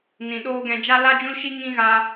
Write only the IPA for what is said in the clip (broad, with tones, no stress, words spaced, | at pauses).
nĩ˨ɗoː˦ɡɛ̃˧ d͡ʒa˦la˦d͡ʒũ˦lʃi˦ ŋĩ˦ɣaː˧